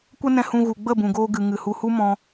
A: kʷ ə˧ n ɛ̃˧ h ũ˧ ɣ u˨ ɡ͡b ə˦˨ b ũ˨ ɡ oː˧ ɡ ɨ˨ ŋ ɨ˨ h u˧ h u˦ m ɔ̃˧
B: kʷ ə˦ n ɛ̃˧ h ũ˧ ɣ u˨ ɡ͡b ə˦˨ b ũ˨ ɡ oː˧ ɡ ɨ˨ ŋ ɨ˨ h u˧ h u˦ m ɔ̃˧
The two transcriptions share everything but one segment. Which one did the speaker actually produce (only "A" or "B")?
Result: B